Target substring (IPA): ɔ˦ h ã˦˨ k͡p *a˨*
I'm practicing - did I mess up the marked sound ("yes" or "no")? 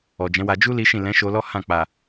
no